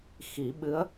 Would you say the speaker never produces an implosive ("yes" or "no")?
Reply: no